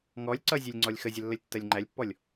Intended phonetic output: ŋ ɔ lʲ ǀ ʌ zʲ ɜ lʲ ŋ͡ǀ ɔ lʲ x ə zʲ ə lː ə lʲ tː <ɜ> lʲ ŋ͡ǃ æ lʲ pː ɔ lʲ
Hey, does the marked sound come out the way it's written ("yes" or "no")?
yes